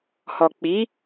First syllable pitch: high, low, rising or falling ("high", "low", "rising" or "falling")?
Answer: low